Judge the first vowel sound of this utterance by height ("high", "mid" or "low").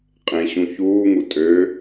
mid